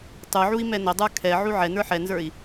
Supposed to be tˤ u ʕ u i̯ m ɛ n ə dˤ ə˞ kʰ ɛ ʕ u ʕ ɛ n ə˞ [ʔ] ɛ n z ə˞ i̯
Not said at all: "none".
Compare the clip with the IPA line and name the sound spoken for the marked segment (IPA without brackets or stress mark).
ħ